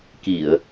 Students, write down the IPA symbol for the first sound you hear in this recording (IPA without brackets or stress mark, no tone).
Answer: k